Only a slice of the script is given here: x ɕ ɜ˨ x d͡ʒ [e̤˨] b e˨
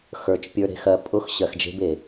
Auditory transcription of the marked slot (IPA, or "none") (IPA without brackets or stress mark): e̤˦